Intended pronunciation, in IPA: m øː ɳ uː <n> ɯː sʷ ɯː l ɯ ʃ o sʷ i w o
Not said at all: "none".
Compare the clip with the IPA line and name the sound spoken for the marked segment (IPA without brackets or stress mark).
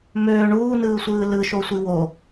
n